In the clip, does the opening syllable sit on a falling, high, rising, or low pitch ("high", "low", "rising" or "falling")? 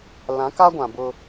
rising